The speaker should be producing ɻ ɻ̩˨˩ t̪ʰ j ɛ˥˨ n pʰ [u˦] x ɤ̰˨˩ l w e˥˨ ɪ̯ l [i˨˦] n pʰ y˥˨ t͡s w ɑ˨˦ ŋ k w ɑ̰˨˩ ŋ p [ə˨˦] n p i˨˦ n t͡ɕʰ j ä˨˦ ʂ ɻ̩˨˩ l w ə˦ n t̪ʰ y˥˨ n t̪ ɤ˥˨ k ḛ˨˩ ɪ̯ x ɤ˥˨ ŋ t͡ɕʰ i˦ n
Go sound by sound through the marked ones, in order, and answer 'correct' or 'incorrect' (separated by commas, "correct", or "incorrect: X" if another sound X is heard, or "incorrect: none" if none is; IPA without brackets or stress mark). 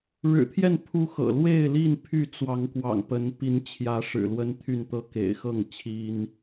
correct, incorrect: i˥˨, correct